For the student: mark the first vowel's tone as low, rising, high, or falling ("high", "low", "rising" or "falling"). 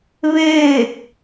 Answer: falling